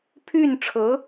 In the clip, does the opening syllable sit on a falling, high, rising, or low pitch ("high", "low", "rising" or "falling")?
falling